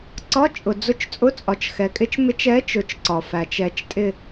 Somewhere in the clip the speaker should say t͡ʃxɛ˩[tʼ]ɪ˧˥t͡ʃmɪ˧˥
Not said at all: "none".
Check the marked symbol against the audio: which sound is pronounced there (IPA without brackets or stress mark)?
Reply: kʼ